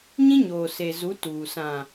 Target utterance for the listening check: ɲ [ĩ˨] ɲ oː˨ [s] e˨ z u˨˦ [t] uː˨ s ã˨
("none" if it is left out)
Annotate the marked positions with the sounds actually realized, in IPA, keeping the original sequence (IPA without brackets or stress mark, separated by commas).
ĩ˦, s, t